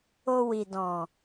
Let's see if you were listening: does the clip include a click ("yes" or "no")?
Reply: no